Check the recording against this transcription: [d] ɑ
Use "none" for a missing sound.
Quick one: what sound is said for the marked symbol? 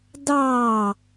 d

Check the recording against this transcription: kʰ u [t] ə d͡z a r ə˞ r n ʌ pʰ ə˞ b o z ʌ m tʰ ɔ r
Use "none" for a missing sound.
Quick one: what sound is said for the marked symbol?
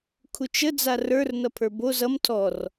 t͡ʃ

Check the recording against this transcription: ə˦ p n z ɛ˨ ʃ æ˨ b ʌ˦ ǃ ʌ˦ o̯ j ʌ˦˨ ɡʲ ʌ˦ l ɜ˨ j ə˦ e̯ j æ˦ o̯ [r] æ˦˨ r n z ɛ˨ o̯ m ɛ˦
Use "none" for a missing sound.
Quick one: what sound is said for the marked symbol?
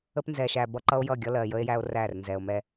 r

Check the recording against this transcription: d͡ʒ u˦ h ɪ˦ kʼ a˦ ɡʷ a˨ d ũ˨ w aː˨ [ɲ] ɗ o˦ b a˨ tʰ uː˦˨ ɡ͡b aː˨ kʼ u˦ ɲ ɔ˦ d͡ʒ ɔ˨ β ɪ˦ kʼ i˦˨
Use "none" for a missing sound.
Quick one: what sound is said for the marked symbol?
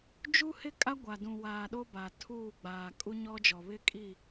none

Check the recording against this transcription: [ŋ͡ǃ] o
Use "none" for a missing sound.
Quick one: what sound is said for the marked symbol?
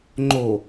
ŋ͡ǃ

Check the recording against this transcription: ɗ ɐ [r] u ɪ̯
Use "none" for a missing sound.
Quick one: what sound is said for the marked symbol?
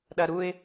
ɾ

